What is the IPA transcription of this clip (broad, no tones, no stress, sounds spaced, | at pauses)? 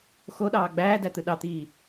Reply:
x o ɗ ɑː ɡ͡b æː d æ t̪ ɯ ɗ ɑ t̪ iː